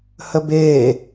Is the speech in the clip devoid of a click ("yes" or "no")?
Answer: yes